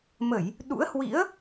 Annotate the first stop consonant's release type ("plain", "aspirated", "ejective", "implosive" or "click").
implosive